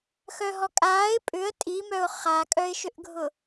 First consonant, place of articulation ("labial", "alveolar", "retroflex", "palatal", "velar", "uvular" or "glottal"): velar